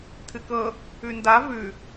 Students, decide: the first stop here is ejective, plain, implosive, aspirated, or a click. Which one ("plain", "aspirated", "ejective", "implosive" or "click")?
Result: aspirated